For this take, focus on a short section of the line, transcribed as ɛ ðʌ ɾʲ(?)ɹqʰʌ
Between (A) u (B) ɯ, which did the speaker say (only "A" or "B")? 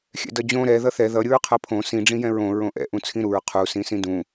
B